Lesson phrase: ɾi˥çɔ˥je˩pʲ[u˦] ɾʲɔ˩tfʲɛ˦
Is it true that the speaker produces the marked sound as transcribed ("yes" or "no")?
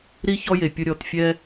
no